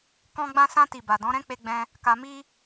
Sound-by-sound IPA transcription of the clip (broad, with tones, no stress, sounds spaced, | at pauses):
k ɔ̃˦ ɡ͡b ã˧ s ã˧ t i˨ b a˨ d ɔ̃˨˦ ɾ ɛ̃˦ k͡p e˦ ɡ͡b ɛ̃˦ | k a˧ m i˦